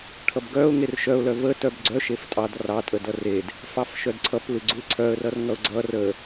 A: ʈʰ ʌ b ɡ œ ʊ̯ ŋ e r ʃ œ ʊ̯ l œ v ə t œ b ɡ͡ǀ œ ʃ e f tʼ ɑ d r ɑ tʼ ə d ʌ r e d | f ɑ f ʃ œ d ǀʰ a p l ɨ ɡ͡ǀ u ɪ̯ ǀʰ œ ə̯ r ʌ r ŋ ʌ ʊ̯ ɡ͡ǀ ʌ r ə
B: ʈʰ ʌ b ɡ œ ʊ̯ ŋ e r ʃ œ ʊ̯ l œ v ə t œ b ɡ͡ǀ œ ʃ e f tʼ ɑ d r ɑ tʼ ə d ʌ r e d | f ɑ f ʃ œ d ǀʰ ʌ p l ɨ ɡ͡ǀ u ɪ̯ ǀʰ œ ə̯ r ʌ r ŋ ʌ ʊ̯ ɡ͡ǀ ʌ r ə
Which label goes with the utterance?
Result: B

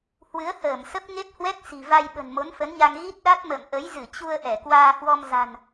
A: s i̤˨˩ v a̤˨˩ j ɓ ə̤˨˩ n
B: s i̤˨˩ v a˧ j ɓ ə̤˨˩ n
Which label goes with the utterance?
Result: B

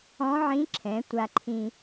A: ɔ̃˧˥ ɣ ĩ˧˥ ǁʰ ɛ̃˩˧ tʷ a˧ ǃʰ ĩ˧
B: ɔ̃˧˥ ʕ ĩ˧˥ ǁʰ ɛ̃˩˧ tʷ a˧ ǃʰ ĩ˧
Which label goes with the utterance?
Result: B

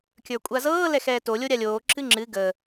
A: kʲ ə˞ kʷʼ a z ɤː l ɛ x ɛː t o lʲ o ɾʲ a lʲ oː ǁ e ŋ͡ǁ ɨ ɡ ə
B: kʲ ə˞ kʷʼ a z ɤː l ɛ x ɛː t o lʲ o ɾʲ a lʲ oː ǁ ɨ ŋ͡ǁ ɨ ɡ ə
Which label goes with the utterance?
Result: B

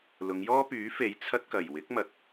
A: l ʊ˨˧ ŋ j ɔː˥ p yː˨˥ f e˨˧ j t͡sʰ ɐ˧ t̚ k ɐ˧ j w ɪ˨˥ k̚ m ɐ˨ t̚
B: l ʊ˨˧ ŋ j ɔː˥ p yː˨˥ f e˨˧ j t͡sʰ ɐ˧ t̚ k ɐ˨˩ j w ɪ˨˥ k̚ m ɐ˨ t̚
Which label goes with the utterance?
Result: B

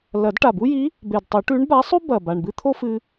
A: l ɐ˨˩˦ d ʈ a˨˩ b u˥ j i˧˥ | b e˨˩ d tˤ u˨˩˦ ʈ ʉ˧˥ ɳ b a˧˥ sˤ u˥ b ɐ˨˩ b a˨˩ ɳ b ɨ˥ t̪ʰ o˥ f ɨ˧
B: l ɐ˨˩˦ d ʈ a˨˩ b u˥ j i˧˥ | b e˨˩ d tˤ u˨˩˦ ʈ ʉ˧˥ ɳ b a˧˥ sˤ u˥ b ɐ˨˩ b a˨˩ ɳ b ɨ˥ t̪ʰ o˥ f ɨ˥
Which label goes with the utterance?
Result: A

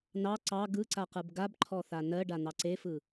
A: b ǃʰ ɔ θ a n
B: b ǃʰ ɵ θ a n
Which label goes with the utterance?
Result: A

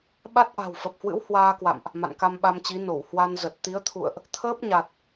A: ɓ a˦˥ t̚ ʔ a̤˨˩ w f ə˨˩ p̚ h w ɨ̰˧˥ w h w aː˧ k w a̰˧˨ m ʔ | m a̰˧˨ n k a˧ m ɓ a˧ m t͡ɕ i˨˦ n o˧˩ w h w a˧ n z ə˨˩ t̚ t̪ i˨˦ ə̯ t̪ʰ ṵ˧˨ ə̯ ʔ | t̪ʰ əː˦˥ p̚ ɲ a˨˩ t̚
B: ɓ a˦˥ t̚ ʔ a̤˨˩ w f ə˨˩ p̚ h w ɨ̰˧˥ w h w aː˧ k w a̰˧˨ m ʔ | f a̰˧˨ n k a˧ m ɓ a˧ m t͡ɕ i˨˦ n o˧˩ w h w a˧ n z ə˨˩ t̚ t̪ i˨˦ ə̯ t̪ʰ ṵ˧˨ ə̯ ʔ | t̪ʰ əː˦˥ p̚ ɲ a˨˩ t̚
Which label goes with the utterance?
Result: A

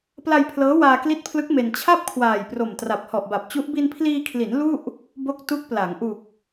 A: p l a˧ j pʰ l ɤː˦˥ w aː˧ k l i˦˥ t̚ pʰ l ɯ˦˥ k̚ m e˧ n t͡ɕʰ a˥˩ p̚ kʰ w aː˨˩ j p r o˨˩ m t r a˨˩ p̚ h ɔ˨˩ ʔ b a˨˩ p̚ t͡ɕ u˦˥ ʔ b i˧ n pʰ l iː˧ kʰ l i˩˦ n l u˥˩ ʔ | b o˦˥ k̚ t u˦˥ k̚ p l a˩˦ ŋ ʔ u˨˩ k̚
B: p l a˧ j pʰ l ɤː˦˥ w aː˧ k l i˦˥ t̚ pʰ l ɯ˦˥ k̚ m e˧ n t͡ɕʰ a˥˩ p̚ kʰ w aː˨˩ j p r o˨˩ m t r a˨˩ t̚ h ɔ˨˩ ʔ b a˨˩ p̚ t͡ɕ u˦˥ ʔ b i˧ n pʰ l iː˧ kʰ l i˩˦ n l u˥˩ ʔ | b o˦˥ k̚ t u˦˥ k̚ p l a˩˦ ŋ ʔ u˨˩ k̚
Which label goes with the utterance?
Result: A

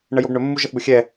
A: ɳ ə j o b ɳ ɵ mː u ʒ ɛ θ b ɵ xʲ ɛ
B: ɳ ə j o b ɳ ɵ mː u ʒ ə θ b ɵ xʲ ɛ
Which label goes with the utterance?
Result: B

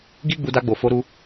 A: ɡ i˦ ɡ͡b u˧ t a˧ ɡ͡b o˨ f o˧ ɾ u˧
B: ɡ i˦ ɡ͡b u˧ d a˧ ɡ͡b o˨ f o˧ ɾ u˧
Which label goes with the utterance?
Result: B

